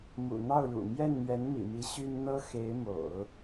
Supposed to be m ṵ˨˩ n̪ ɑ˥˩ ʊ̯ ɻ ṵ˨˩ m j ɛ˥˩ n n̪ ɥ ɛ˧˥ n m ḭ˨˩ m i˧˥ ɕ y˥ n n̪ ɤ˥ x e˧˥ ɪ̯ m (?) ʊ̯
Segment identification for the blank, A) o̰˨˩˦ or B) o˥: A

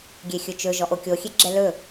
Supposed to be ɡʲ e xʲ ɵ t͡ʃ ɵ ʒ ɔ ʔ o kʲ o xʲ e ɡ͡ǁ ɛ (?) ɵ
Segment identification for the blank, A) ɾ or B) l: B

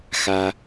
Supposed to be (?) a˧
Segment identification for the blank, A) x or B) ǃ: A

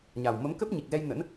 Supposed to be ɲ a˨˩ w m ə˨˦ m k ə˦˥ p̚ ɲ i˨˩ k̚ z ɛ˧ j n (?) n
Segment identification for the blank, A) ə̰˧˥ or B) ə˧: A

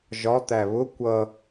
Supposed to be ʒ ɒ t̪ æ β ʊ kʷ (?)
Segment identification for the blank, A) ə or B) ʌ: B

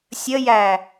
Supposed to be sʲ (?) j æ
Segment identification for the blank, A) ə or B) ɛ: A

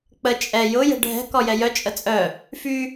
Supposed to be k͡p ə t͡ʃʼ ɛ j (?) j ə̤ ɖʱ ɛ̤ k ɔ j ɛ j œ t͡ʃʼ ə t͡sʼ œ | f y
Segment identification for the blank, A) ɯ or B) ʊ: B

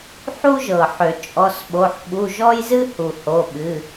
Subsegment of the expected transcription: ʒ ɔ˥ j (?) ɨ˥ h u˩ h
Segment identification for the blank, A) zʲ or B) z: B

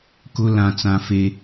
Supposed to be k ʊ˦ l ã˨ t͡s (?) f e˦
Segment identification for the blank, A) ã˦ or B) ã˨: B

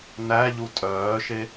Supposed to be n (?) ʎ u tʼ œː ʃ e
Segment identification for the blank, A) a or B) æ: B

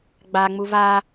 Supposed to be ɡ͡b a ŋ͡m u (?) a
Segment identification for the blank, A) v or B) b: A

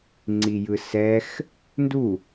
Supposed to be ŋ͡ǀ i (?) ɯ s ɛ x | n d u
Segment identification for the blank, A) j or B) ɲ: A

